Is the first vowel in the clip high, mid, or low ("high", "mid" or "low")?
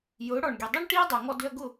high